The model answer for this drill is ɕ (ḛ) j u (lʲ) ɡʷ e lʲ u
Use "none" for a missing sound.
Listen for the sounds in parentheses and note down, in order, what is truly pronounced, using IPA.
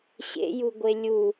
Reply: ḛ, none

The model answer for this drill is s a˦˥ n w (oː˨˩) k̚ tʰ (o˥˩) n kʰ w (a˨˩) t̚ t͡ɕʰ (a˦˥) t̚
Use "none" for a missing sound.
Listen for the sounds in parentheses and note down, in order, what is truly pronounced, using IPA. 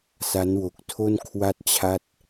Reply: o˨˩, o˥˩, a˥˩, a˥˩

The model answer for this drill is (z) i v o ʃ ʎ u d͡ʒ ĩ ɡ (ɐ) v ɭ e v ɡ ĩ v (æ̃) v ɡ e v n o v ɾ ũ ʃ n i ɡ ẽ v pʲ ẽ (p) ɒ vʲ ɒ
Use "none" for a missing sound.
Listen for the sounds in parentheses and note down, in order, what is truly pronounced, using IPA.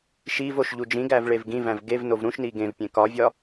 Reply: ʃ, æ, æ̃, k

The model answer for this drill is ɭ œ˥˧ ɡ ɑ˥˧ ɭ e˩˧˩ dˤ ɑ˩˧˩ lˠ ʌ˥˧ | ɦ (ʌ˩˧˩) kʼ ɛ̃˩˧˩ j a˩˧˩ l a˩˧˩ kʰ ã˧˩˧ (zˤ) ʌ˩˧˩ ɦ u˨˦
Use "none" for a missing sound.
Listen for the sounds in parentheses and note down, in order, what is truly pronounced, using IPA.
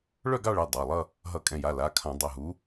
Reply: ʌ˧˩˧, dˤ

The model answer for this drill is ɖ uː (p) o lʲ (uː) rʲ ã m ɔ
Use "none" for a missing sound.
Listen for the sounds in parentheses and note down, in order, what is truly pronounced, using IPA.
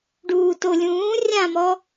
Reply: t, ũː

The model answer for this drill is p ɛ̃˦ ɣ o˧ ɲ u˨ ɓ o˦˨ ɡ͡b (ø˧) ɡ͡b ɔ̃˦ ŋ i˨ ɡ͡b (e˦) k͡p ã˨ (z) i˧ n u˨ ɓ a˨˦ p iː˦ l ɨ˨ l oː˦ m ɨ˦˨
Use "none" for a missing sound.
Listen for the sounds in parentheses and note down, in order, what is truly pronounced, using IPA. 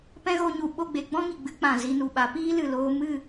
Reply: e˧, ɨ˦, z

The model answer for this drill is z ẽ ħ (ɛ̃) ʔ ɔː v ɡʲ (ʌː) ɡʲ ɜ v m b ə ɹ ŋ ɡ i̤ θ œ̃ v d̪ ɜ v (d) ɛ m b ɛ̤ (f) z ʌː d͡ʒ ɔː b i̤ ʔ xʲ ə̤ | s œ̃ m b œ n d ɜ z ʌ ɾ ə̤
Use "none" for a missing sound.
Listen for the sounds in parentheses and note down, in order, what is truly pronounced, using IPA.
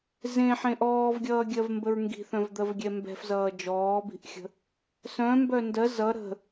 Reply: ẽ, ʌː, ɡʲ, f

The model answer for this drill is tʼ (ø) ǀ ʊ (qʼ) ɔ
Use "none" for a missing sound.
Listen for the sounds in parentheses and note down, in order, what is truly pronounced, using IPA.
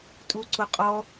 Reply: u, qʼ

